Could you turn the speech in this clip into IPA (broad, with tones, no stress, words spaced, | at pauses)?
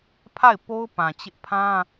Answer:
pʰa˦˨ɪ̯po˦ʊ̯ pã˨t͡ɕɪ˦ʔ pʰã˦